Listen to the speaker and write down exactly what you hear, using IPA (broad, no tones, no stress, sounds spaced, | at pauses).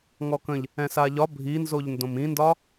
ŋ ɔ k ə̃ ʎ | ɛ̃ s a ʎ ɒ bʱ i n z o ʎ n d õ m ĩ n d ɒ